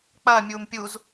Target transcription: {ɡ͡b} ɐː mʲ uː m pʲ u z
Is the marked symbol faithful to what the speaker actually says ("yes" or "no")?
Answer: no